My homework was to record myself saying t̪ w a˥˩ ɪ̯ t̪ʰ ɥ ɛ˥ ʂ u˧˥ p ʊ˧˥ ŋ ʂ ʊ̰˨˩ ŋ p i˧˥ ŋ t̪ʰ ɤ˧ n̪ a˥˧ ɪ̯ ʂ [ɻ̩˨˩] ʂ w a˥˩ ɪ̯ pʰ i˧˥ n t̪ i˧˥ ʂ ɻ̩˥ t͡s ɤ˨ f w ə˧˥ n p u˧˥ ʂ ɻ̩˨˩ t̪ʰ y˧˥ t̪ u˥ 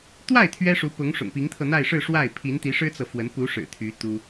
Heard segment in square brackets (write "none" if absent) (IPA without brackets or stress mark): ɻ̩˥˧